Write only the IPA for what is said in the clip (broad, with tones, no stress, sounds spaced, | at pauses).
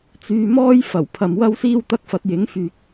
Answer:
t͡s yː˧ m ɔː˥ j f ɐ˨˩ w pʰ ɐ˨ m w ɐ˥ w s iː˥ w t̪ ɐ˥ k̚ f ɐ˨˥ t̚ j ɪ˨˥ ŋ f yː˨ k̚